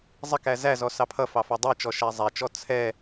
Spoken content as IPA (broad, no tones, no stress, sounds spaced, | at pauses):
zˤ ɪ k æ z æ z ɔ s ɑ pʰ ʌ f ɑ f ɑ dˤ i t͡ʃ ɔ ʃ æ zˤ æ t͡ʃ ɔ t͡sʰ ɛ